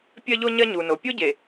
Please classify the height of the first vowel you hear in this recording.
low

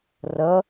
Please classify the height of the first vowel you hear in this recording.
mid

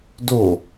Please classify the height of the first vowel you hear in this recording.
mid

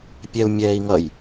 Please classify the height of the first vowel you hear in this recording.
mid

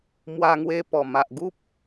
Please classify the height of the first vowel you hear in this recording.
low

